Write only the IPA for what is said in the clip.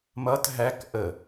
m ʌ t ɦ æ k ʔ ə

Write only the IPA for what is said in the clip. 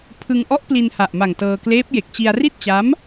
pʰ ɯ˧ ŋ ʔ ɔ˦˥ ʔ p l i˧ n h a˨˩ ʔ m a˨˩ ŋ t ɤː˧ k l eː˦˥ p̚ j e˨˩ k̚ t͡ɕ i˧ a̯ r i˥˩ t̚ t͡ɕ a˦˥ m

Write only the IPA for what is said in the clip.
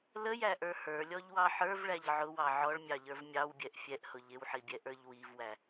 l ə j æ ʔ ə˞ h ə˞ lʲ ɔ ʎ w ɑ ħ ə˞ v ɭ æ ʎ ʕ ʊ w ɑ ʕ ɔ ɭ mʲ ɑ ʎ ə˞ v mʲ ɑ w bʲ ɛ ʔ fʲ ɛ ʔ h ʊ ʎ ɪ w ħ i bʲ ɛ ʔ ə˞ ʎ w i v w æ

